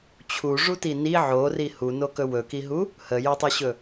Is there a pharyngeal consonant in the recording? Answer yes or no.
yes